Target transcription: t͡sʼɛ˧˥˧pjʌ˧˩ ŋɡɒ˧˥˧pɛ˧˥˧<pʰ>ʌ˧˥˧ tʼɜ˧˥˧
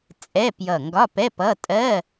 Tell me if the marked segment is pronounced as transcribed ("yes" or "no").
no